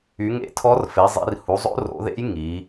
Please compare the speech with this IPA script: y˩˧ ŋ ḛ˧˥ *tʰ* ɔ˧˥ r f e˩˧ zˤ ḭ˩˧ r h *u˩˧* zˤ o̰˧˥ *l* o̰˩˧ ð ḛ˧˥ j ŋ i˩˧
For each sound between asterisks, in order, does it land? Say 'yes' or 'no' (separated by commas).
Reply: yes, yes, no